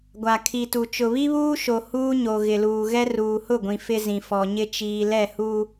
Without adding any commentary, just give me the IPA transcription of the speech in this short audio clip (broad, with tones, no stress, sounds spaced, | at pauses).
ɡʷ a˨ kʰ i˨ t u˨ t͡ʃ ʊ˨ β i˦ β uː˦ ʃ o˨ h uː˦ ɲ o˨ ɣ ɪ˨ l uː˨ ɣ ɛ˦ r uː˨ h ʊ˦˨ ɡʷ ĩ˨ f ɪ˦ z ĩ˨ f ɔ˨ ɲ ɪ˦ t͡ʃ iː˨ l ɛ˦˨ h u˦